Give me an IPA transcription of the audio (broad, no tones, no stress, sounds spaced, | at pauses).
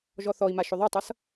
ʒ ɔ θ ɔ i̯ m a ʃ ʏ ðˤ ʉ tˤ ʌ s